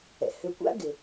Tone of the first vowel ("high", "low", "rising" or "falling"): low